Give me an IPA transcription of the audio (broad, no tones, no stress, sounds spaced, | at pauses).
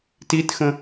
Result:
t i t x ə̃